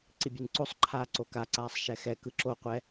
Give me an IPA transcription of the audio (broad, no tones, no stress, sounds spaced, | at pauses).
ǀ i bʲ ɯ n ǀ o sˤ ǃʰ aː ǀ o k a ǀ aː sˤ ʃ ɛ x ɛ k ɯ ǁ o qʷ ɛ